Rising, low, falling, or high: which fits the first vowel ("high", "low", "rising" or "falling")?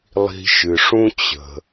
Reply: low